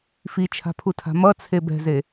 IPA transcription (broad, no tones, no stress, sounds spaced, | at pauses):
f i t͡ʃʰ a̤ pʰ u tʰ a̤ m ʌ t͡sʰ e b ɛ̤ z e